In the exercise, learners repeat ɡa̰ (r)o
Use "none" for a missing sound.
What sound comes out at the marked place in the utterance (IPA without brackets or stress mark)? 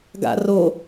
r